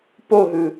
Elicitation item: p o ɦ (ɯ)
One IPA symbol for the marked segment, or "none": ɯ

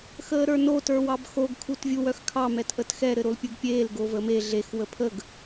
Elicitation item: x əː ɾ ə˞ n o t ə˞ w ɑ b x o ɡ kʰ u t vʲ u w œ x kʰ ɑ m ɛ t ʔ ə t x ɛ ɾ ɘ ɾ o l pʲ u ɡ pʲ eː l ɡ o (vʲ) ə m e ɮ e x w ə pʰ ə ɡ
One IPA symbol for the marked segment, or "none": v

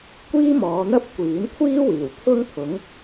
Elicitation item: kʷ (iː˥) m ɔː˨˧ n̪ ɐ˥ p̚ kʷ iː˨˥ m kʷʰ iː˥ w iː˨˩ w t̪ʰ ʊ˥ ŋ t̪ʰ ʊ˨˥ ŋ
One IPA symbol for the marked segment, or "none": iː˥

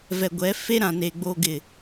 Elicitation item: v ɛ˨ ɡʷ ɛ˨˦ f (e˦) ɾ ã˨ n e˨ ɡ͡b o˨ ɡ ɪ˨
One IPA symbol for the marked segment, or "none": e˦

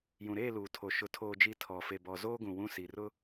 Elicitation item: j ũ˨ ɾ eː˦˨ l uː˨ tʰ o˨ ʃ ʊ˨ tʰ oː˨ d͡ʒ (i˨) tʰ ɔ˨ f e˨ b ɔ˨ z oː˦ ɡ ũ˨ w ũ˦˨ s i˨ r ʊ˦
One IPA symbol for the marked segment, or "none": i˨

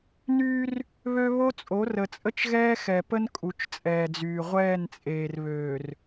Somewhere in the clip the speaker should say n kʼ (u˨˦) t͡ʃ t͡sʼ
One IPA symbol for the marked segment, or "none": u˨˦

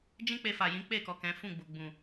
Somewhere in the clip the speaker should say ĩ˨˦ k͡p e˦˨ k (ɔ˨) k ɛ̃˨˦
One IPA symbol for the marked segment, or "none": ɔ˨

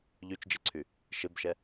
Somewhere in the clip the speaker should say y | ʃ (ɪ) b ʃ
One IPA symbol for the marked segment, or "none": ɪ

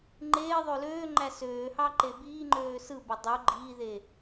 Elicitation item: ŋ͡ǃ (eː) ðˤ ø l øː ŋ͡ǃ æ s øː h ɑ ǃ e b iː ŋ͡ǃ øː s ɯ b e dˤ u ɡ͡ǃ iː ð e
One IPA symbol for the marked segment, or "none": eː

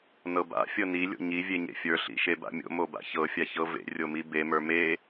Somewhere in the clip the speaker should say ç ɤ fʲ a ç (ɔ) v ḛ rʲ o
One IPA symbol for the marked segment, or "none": ɤ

